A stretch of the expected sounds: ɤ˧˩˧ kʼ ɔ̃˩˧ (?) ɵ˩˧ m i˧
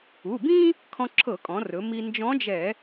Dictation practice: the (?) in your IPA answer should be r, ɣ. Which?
r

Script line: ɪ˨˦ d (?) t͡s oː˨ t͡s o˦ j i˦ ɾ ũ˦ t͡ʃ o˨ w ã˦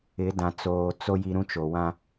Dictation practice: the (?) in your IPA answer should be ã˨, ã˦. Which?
ã˨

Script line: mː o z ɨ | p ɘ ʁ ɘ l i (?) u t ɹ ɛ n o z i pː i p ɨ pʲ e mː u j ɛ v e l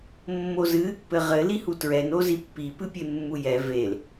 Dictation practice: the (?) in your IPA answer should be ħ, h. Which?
h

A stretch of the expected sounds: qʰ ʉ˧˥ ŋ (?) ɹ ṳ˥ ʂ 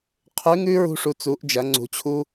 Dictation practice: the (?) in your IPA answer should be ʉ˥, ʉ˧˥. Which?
ʉ˥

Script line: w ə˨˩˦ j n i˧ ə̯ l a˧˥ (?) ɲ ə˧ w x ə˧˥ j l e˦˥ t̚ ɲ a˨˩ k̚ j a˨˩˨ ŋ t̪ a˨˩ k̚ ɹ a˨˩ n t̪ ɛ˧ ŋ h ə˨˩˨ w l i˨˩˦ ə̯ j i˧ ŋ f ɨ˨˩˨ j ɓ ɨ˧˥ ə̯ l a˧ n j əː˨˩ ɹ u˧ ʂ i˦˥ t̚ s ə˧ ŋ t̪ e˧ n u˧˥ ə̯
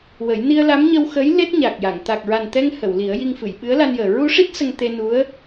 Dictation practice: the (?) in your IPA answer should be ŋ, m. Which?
m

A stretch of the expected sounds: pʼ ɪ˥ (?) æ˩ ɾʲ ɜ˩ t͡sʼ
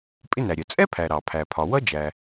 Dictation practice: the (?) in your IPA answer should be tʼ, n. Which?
n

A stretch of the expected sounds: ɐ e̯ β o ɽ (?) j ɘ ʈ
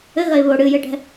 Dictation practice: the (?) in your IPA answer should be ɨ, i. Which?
ɨ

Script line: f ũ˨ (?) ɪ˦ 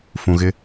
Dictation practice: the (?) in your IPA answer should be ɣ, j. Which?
ɣ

